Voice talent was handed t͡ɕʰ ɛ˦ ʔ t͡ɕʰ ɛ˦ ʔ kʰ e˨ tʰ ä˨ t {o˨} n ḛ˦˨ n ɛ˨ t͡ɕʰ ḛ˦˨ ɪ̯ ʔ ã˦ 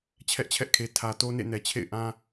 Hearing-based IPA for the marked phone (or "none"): o˦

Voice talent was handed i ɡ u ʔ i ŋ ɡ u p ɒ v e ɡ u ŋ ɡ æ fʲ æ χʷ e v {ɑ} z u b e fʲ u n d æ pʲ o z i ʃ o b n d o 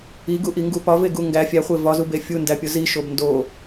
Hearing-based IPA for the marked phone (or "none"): ɒ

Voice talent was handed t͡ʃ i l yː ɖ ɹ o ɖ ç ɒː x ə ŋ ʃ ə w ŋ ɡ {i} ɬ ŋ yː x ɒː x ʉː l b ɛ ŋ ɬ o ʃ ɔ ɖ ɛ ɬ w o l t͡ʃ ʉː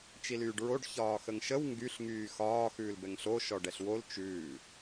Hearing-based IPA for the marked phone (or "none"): y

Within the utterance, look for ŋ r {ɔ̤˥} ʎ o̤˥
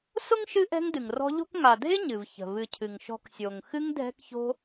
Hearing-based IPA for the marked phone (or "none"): ɔ̤˦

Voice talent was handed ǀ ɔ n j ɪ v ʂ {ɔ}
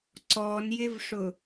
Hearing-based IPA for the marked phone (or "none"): ʊ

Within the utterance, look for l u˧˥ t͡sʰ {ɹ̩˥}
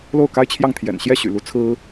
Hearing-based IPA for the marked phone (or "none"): ɹ̩˥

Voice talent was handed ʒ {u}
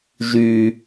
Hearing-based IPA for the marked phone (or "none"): y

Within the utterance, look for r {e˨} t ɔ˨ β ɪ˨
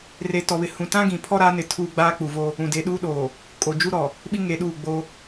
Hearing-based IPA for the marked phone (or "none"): e˨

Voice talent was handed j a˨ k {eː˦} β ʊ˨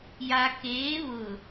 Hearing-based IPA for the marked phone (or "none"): eː˨˦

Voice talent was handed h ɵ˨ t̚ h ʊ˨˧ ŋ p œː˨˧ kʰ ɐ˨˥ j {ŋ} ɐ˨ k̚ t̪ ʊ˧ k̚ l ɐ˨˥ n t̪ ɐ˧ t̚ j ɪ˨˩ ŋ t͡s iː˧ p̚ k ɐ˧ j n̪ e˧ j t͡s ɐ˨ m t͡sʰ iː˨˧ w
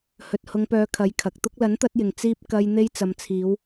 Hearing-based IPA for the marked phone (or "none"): kʰ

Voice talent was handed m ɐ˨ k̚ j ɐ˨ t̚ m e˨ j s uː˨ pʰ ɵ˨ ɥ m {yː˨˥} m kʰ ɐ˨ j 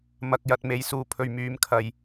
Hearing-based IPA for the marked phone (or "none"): yː˨˧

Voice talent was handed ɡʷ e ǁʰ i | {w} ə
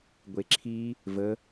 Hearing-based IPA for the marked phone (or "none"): v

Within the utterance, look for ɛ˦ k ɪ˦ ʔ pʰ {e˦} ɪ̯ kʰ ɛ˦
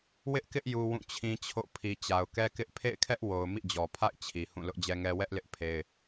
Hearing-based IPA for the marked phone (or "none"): ḛ˦˨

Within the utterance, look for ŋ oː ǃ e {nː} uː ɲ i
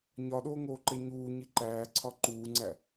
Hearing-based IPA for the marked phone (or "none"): ɲ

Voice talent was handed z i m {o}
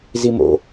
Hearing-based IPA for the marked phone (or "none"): o̰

